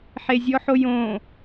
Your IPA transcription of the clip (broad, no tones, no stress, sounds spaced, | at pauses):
ħ e zʲ ɔ ħ o j õ